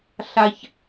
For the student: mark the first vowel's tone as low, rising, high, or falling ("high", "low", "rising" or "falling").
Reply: high